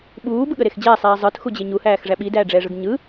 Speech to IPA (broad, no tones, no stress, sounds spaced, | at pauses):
ɓ uː b ɯ ɠ ə ɾ e x d͡ʑ ɛː sˤ iː zˤ ə˞ t x u d͡ʑ e ɲ u h æː x ʐ æ ɓ i d æː ɖ͡ʐ ɛː ʐ ɯ ɡ ɲ ɯ